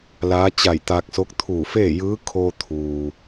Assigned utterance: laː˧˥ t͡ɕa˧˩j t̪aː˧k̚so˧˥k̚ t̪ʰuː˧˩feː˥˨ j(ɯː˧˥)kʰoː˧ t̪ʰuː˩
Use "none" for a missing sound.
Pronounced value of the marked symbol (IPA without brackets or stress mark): ɯː˧˥